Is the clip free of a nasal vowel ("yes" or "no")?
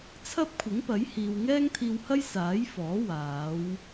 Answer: yes